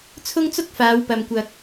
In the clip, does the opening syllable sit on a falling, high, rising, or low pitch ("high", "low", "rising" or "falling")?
high